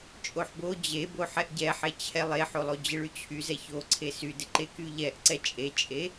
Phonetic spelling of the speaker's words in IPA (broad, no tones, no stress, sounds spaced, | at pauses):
t͡ʃʼ o ħ b o d͡ʑ e b o ħ ɛ ʔ ɟ ɛ ħ e t͡ɕʰ ɛ lˠ e ħ o lˠ o d͡ʑ ɪ ɭ y t͡ɕʰ y z ɛ ç o ǀʰ e s y d ɪ ǃ e k y ʎ ɛ ʔ ǀ ɛ t͡ʃʼ e t͡ʃʼ e